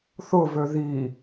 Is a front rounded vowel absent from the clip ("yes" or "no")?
no